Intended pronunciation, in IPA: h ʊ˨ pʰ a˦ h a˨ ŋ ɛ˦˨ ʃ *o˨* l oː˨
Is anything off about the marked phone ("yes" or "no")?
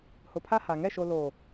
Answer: no